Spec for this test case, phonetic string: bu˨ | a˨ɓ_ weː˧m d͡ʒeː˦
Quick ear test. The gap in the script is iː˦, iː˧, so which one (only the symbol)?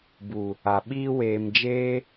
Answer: iː˦